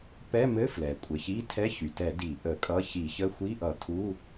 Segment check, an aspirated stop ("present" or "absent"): present